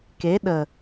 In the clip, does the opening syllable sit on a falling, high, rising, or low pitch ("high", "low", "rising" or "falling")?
rising